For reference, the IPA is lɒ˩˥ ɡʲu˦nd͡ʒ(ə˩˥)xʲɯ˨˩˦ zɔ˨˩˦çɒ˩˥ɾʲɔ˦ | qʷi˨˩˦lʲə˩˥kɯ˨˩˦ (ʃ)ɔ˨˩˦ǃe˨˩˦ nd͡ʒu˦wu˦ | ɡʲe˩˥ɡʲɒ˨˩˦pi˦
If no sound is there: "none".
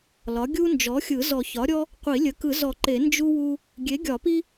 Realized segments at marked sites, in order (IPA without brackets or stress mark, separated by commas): ɔ˩˥, z